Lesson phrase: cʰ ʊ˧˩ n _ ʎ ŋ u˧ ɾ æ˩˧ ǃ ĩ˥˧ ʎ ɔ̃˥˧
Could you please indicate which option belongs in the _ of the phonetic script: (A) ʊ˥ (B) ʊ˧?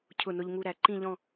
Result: B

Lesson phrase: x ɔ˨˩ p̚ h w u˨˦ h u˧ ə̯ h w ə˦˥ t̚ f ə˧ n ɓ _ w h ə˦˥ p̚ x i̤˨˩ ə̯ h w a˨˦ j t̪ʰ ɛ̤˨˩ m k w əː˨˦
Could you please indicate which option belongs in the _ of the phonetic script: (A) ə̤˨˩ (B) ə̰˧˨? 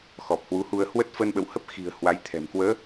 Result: B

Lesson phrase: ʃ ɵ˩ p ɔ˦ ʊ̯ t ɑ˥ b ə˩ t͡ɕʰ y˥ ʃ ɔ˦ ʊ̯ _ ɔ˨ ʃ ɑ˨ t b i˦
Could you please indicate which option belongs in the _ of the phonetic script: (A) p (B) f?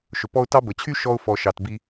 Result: B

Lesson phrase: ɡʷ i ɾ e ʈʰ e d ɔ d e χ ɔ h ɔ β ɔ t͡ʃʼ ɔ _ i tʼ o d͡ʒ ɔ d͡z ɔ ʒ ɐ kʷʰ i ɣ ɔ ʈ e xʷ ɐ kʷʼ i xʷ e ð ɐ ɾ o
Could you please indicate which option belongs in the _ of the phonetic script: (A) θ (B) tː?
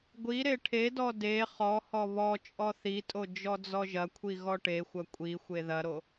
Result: A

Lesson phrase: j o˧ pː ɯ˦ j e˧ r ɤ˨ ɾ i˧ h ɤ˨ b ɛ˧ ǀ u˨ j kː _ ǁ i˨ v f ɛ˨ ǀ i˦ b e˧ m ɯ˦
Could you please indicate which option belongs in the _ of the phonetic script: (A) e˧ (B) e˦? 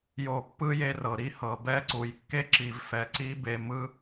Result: B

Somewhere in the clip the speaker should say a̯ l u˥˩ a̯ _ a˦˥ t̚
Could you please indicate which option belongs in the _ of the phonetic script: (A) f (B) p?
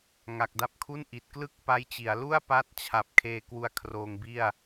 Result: B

